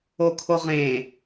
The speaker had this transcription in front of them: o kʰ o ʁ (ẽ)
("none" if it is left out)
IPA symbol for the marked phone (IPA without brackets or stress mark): ẽ